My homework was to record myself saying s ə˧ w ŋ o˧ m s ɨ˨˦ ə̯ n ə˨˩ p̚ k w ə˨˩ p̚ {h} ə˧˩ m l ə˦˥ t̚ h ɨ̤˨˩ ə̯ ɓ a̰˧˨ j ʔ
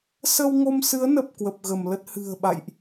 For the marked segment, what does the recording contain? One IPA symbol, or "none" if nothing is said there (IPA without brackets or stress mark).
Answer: ɣ